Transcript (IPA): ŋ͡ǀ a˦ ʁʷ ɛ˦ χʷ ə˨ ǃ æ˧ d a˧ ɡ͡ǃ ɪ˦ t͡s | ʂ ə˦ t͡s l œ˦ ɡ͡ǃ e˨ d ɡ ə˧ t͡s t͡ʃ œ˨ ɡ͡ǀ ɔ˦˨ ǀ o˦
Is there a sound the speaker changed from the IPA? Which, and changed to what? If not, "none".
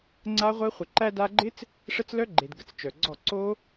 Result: none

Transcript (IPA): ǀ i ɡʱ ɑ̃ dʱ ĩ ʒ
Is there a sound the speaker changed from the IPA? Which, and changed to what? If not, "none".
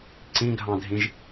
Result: i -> ĩ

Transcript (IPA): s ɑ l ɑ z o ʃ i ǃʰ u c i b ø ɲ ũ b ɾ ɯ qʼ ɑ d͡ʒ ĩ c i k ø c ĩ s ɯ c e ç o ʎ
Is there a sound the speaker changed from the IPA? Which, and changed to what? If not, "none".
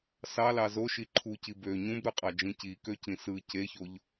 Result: none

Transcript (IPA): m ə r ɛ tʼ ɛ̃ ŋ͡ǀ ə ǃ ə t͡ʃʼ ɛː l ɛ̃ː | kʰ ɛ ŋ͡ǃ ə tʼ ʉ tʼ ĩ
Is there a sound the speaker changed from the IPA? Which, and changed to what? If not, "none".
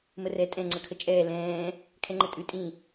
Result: ǃ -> kʰ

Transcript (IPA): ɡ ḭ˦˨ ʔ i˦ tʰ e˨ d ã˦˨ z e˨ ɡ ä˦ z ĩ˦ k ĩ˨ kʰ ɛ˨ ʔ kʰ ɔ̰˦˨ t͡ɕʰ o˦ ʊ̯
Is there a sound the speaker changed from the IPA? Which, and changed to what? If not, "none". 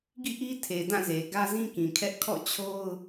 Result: ɛ˨ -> ɛ˦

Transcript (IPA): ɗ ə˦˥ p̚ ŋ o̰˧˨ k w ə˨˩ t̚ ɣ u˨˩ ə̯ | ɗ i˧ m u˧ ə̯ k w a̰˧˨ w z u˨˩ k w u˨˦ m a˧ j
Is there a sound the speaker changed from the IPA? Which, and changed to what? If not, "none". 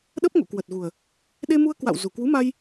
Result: i˧ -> e˧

